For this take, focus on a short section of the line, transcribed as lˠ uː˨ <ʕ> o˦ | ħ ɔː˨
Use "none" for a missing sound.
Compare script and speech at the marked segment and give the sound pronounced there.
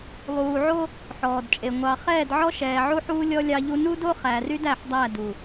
ʕ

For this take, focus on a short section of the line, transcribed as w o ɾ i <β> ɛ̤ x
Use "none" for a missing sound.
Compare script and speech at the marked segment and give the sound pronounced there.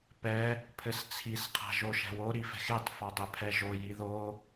f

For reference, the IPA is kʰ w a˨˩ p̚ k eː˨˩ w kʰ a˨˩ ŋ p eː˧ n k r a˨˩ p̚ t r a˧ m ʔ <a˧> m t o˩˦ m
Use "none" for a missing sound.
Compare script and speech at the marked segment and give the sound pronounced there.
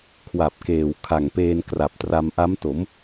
a˦˥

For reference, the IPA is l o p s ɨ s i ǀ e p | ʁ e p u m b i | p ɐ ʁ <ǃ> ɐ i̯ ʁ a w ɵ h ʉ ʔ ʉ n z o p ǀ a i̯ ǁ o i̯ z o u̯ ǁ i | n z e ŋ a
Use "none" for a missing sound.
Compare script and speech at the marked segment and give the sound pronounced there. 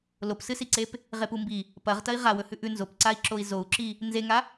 t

